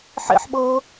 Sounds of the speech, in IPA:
ħ ḛ ħ ɓ ɤː

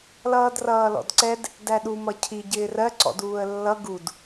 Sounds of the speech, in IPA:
l ʌː d r ʌː l ɔ̰ d ǀ ɛ d | d æ ɗ u m ʌ cʰ i ɟ ɪː r ɜ ǀ ɔ̰ d uː ə̯ lː ʌ ɡ u d

